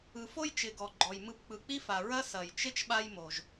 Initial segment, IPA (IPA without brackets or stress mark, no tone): ɯ